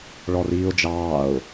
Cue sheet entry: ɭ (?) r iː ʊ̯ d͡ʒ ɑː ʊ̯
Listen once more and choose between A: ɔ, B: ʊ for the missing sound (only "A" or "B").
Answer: A